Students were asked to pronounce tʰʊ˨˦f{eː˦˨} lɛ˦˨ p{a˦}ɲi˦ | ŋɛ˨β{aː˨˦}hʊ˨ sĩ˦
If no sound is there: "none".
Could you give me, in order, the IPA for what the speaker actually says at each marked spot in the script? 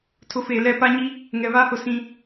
eː˨, a˦, aː˦

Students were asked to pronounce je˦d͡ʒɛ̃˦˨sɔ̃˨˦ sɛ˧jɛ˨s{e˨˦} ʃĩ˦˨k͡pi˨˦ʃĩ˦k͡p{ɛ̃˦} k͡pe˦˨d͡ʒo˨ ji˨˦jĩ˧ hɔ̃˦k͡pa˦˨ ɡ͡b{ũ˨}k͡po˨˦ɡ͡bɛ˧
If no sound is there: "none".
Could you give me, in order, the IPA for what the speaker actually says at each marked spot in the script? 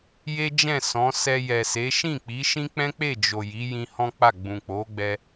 e˨˦, ɛ̃˦, ũ˨

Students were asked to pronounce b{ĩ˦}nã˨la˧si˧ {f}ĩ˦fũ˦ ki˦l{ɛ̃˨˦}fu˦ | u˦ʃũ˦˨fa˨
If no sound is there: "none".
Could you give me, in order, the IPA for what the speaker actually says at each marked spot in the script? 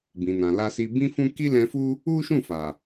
ĩ˨, b, ɛ̃˧

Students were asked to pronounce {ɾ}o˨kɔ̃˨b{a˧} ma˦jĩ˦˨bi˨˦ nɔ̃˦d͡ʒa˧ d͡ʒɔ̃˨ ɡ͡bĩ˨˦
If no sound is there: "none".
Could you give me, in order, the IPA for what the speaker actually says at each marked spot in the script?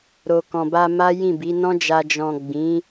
ɾ, a˧

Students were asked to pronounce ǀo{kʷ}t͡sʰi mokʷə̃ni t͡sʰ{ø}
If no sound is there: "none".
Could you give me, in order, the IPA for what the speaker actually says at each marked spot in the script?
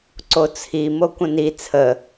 none, ə

